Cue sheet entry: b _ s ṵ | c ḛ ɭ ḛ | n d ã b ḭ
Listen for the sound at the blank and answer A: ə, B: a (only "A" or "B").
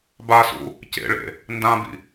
B